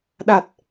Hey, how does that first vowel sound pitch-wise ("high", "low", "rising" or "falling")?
low